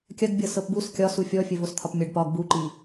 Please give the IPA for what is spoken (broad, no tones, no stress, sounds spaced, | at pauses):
kʲ ɐ ɡ bʲ ɤ s ɤ p b u s kʲ ɒ s u fʲ ɔ fʲ ɘ v o s t̪ʰ ɒ p mʲ ɤ ɖ p ɒ ɡ b u ǃ i